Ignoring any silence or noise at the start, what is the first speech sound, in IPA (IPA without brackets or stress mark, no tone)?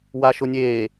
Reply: w